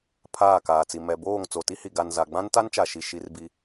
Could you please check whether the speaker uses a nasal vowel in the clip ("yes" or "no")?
yes